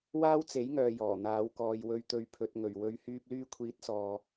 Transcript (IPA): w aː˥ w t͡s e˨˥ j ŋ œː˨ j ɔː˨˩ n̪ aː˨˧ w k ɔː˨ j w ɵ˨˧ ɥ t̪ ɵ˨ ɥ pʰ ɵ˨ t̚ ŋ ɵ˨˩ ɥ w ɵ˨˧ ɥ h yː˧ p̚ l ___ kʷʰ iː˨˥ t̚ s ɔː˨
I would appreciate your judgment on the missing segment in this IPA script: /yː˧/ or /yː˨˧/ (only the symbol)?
yː˧